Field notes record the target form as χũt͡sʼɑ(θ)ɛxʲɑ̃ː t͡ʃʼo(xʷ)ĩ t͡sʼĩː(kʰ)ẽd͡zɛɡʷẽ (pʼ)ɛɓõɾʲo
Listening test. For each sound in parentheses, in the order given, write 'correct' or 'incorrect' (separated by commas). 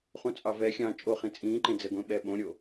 incorrect, incorrect, incorrect, incorrect